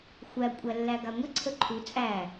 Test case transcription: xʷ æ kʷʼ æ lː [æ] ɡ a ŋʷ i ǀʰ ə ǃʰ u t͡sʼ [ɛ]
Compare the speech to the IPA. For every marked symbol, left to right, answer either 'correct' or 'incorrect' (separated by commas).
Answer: correct, incorrect